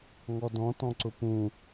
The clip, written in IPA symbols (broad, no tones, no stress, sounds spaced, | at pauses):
ŋ ɔ d ɔ̃ t ɔ̃ ǀ ʊ p ũ